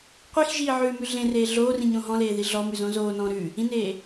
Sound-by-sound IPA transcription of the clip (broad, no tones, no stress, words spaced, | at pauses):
qʷixʒiː ʕʉmʉ ɮẽreː ɮoːrĩɲõ ɦɔ̃leːði ɮɔmʉzõ zoːnɔ̃ː ɾʉ | ĩneː